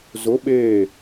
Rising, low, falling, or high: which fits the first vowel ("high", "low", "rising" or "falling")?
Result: rising